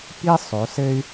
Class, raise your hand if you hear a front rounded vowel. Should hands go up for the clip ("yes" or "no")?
yes